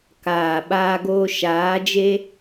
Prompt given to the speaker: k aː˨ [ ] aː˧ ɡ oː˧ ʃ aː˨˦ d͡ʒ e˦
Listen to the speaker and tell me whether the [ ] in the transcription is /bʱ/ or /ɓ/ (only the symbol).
ɓ